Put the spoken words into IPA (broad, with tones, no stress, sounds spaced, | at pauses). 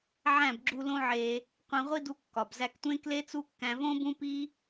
ʕ æ̃˦˨ b ɡ͡ǁ u˧ l õ˦ ʕ e˧ | qʷ ẽ˧ ʁʷ i˦ d u˧ kː ɒ˨ b z æ˧ k tʷ ẽ˦ k l e˦ t͡s u˦ kː æ̃˧ v õ˦ b ũ˦ p i˦